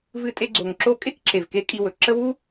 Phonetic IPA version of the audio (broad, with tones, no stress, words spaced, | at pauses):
vɨ˦tʼe˦ ɡ͡ǀo˨ŋǁo˦ kʼe˥kǁe˨v ke˥kʼi˦wɵ˩ ǁə˥ wu˥